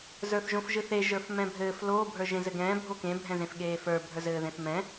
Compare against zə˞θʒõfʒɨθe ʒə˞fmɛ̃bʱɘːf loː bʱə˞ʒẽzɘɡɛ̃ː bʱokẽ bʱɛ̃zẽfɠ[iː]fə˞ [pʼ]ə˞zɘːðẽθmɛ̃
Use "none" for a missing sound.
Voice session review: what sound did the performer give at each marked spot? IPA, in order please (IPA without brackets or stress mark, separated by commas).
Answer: eː, bʱ